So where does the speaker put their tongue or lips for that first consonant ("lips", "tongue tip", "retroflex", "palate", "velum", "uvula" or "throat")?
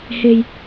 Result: throat